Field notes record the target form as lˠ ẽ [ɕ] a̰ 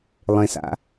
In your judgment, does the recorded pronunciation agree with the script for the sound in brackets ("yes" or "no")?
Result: no